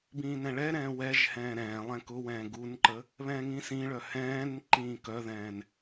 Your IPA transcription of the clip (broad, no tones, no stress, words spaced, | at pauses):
bĩːnɛ̃ɭɛɾɛ̃ː wɛʒhɛ̃ː ɾɛ̃ːlˠɛ̃ kʊwɛ̃ː ɡunǃə | βɛ̃ːŋĩsĩɭœ hɛ̃ːn ǃĩːkœðɛ̃ːn